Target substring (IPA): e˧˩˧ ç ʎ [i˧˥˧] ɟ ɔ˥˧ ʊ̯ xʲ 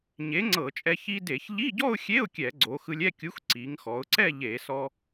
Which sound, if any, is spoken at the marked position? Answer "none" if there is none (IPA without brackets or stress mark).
i˧˥˧